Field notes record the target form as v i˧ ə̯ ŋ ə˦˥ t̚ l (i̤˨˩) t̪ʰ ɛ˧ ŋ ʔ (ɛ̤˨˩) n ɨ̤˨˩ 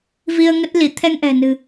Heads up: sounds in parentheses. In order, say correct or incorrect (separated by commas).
incorrect, correct